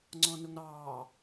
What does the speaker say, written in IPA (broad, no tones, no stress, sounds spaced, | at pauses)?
ŋ͡ǀ ɔ̃ n ʊ ŋ ɾ ɑː